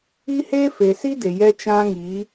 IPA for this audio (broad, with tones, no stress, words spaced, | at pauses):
i˦he˦ fe˨si˦de˨ jɛ˦t͡ʃã˦ŋiː˨˦